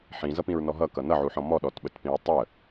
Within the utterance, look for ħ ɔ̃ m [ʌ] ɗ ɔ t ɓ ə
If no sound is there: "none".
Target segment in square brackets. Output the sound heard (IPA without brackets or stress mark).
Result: ɔ